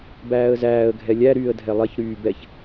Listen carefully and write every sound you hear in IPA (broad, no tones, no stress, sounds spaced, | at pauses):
b æː ə̯ z æː ə̯ ɡʱ ɛ lʲ æ ɾ yː ə̯ dʱ ɛ lˠ ɛ ç ɾ yː b ɛ ç